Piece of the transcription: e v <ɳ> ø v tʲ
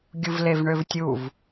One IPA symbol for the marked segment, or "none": ɳ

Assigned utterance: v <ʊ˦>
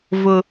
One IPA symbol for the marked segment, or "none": ʊ˦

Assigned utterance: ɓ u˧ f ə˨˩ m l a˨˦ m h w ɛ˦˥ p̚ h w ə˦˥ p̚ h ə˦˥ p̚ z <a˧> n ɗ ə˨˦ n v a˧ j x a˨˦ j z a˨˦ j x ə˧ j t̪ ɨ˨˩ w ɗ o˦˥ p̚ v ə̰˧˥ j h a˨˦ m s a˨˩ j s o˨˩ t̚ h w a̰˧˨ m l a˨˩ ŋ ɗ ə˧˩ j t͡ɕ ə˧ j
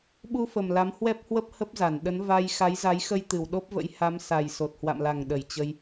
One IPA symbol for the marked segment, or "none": a˧˩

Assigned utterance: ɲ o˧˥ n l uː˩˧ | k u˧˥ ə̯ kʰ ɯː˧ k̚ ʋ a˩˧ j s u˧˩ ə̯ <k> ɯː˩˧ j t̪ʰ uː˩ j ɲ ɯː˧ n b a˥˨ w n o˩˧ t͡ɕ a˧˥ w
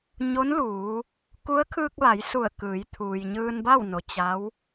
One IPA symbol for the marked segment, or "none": k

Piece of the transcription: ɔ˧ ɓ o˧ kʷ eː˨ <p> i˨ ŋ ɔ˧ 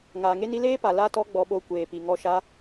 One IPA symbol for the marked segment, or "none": p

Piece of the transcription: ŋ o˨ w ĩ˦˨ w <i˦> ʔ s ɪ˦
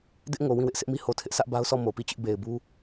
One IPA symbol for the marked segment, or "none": ɪ˦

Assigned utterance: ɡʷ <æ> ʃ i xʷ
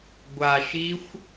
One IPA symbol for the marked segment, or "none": a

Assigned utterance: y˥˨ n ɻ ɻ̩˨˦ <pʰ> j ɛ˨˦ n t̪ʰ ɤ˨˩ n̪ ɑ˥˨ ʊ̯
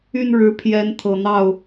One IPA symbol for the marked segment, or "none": pʰ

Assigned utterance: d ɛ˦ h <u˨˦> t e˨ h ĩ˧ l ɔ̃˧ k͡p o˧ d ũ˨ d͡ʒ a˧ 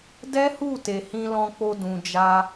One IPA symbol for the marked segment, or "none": u˦˨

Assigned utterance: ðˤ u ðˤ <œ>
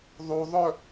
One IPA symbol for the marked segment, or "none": œ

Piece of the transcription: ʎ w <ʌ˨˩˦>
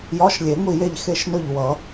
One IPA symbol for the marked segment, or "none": ʌ˨˩˦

